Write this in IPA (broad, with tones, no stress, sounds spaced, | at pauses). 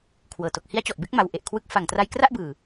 kʰ w ɤː˨˩ t o˨˩ k̚ h i˦˥ a̯ t͡ɕ ɔ˨˩ ʔ b e˥˩ k̚ m a˦˥ w ʔ e˨˩ ʔ kʰ w ɯ˦˥ k̚ f a˨˩ ŋ t r a˧ j k r a˥˩ ʔ b ɯː˨˩